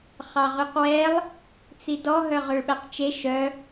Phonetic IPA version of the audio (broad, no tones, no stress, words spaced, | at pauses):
χɑʁyqwɛlˠ | t͡sidɔ ɦœʁøɭɓæqt͡ʃe ʃœ